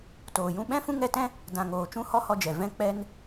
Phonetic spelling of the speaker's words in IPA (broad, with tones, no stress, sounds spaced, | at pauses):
t oː˨ j ũ˦ ɓ ɛ̃˦ f ũ˦ ŋ ɛ˧ t ɛ̃˦ | d ã˨ ŋ oː˨ t͡ʃ ũ˦ h ɔ˦ h ɔ˧ d͡ʒ ɛ˨ v ɛ̃˦ k͡p ɛ˦ n